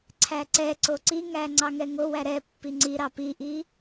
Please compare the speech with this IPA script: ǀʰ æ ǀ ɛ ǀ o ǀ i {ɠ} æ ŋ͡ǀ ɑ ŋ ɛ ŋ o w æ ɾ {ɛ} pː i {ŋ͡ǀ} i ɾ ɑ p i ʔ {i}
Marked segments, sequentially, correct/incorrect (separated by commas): incorrect, correct, correct, correct